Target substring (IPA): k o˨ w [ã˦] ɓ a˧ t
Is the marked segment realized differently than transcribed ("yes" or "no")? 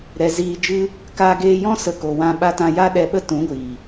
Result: yes